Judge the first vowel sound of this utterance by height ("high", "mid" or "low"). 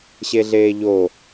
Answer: mid